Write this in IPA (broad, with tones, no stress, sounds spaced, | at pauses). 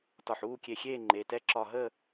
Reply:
t ɒ˧˩ ħ uː˥˨ kʲ e˧˩ xʲ eː˥˨ ŋ͡ǃ e˩˧˩ t ɛ˥˨ ǁ ɒ˧˩ ɦ ə˥˨